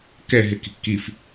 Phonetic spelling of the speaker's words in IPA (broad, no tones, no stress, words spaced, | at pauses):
kɛɦɪki̤ kif